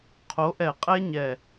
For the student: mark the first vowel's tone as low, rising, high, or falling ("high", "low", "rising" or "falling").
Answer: rising